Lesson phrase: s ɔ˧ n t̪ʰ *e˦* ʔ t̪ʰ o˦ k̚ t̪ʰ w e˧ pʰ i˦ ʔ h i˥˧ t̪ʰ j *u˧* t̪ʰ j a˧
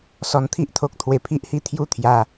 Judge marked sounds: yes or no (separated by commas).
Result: no, no